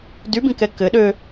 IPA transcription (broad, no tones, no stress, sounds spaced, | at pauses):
d y b ĩ k ɛ k ɘ ɗ ø